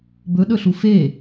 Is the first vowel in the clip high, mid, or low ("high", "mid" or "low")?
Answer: mid